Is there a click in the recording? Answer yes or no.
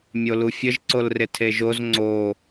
yes